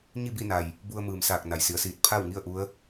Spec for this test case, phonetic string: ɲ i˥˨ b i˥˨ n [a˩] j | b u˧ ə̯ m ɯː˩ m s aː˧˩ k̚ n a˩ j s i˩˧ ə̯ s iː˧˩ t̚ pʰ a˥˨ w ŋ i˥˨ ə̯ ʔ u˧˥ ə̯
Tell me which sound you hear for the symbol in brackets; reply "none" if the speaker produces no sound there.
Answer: a˩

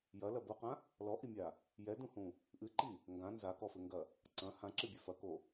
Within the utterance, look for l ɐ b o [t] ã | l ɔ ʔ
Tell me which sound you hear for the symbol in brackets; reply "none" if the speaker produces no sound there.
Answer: q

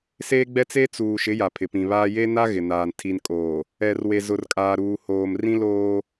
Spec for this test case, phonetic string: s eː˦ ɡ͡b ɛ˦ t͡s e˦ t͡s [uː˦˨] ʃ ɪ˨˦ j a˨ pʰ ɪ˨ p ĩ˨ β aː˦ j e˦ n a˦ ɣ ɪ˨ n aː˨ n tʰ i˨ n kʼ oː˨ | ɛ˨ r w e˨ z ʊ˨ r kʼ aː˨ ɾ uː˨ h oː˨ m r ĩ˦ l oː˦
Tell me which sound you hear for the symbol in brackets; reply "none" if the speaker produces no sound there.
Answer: uː˨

